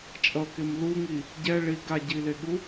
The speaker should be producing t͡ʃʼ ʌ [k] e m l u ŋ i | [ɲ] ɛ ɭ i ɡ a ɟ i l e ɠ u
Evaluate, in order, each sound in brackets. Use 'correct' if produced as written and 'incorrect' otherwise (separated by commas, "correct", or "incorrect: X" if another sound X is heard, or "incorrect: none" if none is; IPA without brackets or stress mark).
correct, incorrect: ɟ